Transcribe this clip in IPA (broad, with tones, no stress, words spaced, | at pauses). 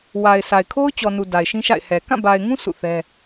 wa˨ɪ̯sʰa˨ɪ̯ kʰo˦ʊ̯t͡ɕɔ˨nu˨ da˨ɪ̯ʃĩ˦ʃa̰˦˨ɪ̯hɛ˨ kã˦˨ba˨ɪ̯ŋũ˦ sʰṵ˦˨θɛ˦